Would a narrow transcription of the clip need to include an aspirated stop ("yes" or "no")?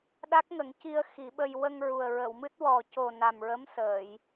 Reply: no